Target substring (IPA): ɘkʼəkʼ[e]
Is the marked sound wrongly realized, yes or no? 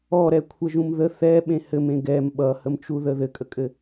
yes